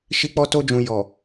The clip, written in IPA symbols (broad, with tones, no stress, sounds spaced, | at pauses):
ʃ i˦ k͡p ɔ˦ t o˧ d͡ʒ ũ˨ j ɔ˨